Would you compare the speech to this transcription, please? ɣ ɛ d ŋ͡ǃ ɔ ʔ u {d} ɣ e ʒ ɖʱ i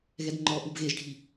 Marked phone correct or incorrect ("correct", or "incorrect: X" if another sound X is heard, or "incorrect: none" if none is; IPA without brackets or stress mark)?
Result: incorrect: b